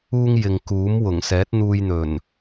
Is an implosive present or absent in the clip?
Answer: absent